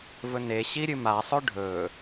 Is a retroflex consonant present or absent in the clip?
present